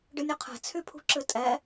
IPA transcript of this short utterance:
ɖɨnʲɵqʰɛ̤ t͡sʰypʰṳǁɨtʼɛ

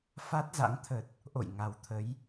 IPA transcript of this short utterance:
fa˦˥t̚za̰˧˥ŋ t̪ʰə˨˩t̚ | ʔo̰˧˨jŋa˨˩wt̪ʰə˨˦j

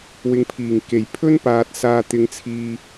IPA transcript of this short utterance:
wɪ˨˧ŋpʰiː˨˩ŋke˨˩j pʰɵ˥npaː˨t̚ saː˧t̪ɪ˧ŋt͡sʰiː˧

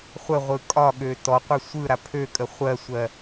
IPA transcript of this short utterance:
χʷəʁʷɯ kʼɒɠø tɔqʷɯ sʷɯ ɾapʰøkʼə χʷɜsʷɜ

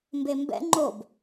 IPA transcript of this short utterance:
mbembɛ̰ ŋ͡ǃob

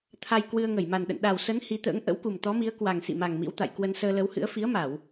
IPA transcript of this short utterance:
t̪ʰa˧j kwɨ˧ə̯ ŋə˧˩jma˨˩nɗə̰˧˨n ɗa˨˩wsə˨˦n hi˨˦t̪ə̰ː˧˥ŋ ʔə̰˧˥wku˨˩mt̪ɔ˨˦mi˨˦ə̯ kwa˨˩ŋsḭ˧˨ma˨˩ŋ mḭ˧˥wt̪a̰˧˨j kwə˧nsəː˧lə˨˦whɨ̰˧˥ə̯ fi˨˦ə̯ma˧˩˨w

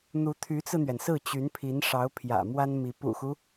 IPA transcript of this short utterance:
n̪u˧˥t̪ʰy˧˥t͡sɹ̩˧n̪ɥɛ˩n sɹ̩˥˩t͡ɕy˧˥npʰi˧˥n ʂɑ˧˥ʊ̯pʰjä̰˨˩ mwa˥nmi˧˥ pṵ˨˩xu˦

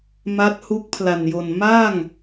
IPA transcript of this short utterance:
ma˦˥t̚ hu˦˥k̚pʰla˨˩njo˨˩n ma˥˩ŋ

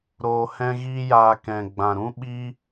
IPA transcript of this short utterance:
ɾoː˧hɛ̃˦ɣiː˦jaː˧ kɛ̃˨ ɡ͡bã˨ɾũ˦ ɓiː˦

